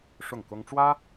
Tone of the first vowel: falling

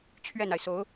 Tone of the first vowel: falling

